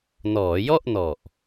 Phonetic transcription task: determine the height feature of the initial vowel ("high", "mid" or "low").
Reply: mid